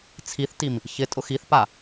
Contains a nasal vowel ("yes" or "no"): no